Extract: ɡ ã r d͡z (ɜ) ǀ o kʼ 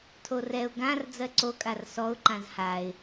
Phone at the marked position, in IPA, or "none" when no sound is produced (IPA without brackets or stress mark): ɜ